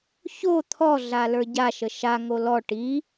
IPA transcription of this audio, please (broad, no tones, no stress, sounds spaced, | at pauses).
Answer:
ç o t̪ʰ ɔ ɮ a l ə˞ ɟ a ʃ ə ʃ a ŋ o l ɔ ʈ i